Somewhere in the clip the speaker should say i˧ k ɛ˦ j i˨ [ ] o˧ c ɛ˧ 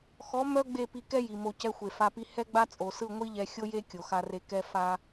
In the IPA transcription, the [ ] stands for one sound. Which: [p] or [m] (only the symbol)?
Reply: m